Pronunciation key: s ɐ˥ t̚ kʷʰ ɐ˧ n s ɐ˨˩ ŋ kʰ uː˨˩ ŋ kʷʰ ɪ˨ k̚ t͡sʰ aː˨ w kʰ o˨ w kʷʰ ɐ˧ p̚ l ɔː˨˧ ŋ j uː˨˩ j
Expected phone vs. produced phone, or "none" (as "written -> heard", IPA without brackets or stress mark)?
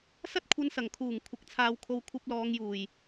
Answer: none